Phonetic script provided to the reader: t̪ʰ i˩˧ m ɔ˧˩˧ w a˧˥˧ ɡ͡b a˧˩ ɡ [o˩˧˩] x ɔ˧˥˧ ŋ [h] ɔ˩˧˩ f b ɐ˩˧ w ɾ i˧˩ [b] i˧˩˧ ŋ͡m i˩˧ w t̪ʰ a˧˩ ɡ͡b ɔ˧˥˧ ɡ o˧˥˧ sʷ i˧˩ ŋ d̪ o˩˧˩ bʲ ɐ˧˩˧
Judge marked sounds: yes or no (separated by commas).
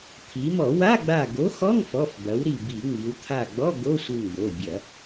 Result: no, no, yes